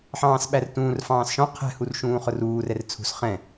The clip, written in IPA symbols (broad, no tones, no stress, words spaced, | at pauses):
ħɑ̃ːsɓærtũːr fɑ̃ːsʃɔ̃ qʰɛ̤ hurʃũːχʊruːr ɛrt͡sʰṳs χɛ̃